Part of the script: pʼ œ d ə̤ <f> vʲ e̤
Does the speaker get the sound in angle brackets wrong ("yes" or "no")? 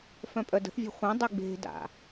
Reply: yes